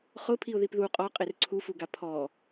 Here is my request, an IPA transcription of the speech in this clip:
χʊ pʰiʊ̯ðipðu qʼɔqʼer ǀʰufuɡa pʰɔ

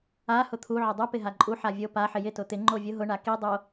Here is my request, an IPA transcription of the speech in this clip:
a hʊt̪ʰu ʕʊdˤu pɪɦaǃʼu ħavʲo pa ħɪjɪ tʊt̪ɪ ŋ͡ǃovʲʊ ɦʊ ɳaki dˤo

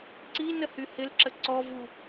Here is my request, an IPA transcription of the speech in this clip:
ǀinə hyhɪlǁə ǀɔvu

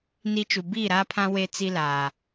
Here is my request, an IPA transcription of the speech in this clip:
ni˦t͡ʃu˨ biː˦˨ɾaː˦pʰã˦ we˦ t͡si˦laː˨

